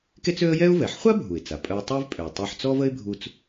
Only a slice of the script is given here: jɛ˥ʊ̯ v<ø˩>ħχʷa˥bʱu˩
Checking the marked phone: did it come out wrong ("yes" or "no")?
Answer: yes